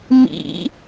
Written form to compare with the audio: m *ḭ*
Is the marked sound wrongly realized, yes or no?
no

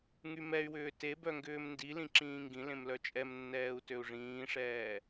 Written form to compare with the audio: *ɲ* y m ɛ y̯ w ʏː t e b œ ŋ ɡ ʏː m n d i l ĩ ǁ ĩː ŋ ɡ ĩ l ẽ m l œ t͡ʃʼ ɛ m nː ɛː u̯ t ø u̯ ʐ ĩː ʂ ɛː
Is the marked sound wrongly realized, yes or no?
yes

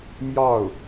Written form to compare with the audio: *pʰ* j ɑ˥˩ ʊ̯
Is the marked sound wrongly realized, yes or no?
yes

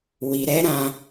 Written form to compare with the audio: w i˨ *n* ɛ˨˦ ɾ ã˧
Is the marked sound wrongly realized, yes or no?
yes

